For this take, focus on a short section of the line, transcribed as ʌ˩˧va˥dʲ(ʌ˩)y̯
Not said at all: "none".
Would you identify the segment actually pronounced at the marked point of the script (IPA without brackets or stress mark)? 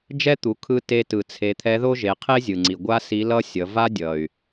ʌ˩